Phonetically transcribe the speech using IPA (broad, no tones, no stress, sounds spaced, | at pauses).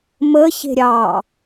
m ə ç e̤ ɾʲ ɑ